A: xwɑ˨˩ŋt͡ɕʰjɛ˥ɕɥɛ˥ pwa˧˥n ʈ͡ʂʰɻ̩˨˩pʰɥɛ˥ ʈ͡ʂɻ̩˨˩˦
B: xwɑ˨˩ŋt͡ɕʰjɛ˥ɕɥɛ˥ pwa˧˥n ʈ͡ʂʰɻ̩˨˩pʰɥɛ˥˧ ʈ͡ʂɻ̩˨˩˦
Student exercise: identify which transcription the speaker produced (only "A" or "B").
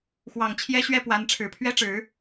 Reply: A